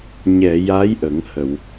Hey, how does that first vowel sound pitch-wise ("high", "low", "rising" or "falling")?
low